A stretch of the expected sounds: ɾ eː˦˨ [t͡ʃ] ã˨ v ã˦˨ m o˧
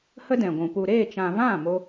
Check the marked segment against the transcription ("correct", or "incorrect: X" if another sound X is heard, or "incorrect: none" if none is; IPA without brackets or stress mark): correct